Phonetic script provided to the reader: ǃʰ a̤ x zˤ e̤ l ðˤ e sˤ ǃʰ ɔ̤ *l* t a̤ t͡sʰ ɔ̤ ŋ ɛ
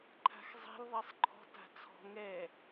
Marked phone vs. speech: incorrect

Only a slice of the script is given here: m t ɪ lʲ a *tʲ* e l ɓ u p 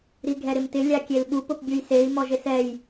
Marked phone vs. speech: incorrect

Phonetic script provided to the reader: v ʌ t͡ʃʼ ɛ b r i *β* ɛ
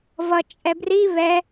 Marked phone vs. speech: correct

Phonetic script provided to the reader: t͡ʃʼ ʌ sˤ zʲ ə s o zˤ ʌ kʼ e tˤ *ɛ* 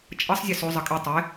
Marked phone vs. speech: incorrect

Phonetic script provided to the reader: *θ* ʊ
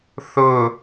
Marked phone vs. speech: correct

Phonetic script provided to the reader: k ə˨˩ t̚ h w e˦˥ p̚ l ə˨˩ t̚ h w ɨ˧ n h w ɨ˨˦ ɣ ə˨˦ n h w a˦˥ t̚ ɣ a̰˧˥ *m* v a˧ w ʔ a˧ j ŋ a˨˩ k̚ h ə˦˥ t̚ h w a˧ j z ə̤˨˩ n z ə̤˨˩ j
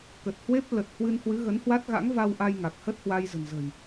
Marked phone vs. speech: incorrect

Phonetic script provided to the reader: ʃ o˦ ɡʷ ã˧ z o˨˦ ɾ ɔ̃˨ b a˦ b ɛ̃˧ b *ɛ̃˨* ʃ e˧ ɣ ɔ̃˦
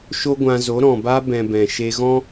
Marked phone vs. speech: correct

